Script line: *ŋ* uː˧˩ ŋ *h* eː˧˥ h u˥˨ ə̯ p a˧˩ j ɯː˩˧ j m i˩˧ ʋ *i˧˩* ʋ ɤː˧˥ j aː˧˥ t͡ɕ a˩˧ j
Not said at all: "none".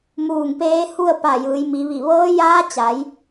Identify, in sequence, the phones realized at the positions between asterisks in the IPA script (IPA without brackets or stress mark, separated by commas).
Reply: m, p, i˧˩